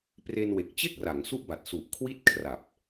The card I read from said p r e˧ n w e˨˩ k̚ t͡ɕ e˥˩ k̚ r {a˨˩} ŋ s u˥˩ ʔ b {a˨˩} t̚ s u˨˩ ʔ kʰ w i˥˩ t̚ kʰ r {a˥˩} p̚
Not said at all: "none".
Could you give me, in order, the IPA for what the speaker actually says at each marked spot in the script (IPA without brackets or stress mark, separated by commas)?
a˩˦, a˨˩, a˨˩